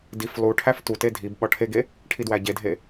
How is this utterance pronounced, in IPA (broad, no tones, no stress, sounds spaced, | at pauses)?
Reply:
d i f lˠ u ʈʰ æ f t u t e dʱ i b ɓ ɒ ʈʰ e ɡ e | ʈʰ i d w æ ɟ e dʱ e